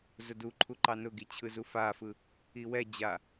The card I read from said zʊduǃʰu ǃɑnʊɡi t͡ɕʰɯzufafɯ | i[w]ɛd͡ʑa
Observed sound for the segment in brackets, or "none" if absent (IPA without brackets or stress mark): w